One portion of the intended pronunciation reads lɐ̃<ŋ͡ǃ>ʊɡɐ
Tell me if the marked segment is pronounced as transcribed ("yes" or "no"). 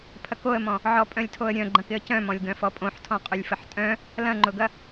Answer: yes